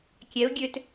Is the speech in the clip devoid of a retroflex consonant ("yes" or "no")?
yes